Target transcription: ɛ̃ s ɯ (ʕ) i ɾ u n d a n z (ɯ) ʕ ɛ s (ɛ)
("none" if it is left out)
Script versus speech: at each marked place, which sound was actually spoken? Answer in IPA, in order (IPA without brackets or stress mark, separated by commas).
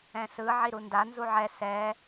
ʕ, u, ɛ